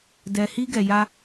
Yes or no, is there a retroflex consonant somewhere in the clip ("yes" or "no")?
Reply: no